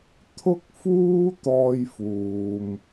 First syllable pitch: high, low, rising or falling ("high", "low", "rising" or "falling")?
high